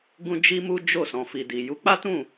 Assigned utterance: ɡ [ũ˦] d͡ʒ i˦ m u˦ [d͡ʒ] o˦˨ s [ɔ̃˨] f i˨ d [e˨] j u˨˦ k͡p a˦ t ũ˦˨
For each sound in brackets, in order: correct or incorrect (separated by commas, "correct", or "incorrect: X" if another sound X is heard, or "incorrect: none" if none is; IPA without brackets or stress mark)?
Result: correct, correct, correct, incorrect: i˨